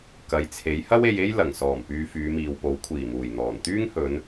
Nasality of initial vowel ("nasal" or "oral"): oral